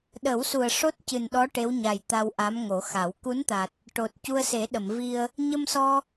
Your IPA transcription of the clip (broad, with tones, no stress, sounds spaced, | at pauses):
ɗ ə˨˩˦ w s u˨˩ ə̯ ʂ o˦˥ t̚ c ɨ˨˩ n ɗ ɔ˧˥ ʈ e˧˥ w ɲ a˨˩ j t̪ a˧ w ʔ a˧˥ m ŋ o˨˩˦ x a˨˩˦ w k u˧˥ n t̪ a˨˩ t̚ | ʈ o˨˩ t̚ c u˧ ə̯ s e˨˩˦ ɗ ə˨˩˨ m v i˧ ə̯ | ɲ ə˧ m s ɔ˧